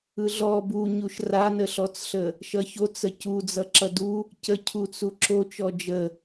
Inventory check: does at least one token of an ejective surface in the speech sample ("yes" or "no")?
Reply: no